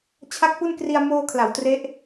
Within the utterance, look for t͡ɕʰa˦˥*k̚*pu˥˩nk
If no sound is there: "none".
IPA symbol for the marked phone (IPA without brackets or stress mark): k̚